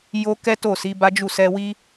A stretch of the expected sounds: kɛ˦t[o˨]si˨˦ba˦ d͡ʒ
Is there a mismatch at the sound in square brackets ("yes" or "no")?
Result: yes